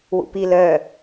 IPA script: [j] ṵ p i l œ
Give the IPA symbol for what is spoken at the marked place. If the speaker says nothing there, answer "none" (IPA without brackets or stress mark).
w